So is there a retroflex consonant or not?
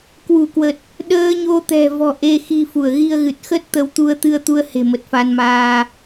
no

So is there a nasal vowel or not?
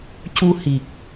no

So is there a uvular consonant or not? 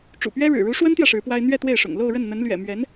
no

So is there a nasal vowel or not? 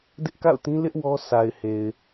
yes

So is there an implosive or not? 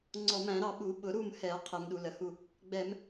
yes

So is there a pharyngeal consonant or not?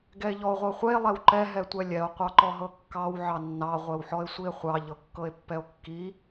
yes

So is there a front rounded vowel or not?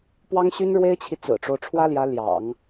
yes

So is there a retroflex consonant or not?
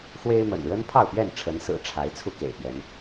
yes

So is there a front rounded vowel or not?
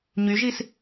yes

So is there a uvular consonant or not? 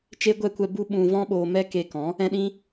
no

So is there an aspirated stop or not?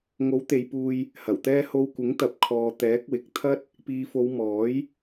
yes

